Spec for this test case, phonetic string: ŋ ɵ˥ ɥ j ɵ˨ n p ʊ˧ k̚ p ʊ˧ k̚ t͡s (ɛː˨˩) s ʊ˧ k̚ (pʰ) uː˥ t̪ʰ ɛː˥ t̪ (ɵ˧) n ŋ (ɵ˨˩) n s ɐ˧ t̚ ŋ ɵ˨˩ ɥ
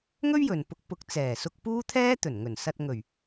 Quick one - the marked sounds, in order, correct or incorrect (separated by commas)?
correct, incorrect, incorrect, correct